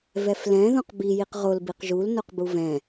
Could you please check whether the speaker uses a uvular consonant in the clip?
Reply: yes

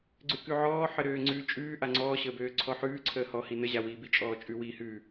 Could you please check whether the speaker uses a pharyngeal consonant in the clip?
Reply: yes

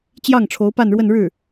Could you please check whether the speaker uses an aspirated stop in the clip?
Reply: yes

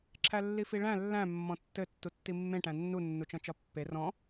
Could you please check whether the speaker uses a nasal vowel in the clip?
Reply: yes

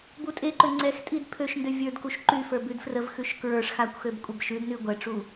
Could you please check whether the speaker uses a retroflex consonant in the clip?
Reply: yes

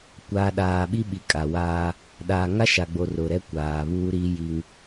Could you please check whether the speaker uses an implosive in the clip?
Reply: yes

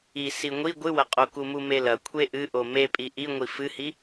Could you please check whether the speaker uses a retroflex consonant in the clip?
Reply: no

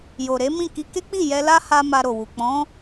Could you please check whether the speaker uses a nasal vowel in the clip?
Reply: yes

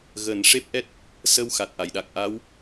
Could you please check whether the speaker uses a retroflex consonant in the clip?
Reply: yes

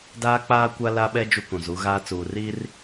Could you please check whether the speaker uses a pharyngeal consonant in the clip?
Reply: no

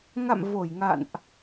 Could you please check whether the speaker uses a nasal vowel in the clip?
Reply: no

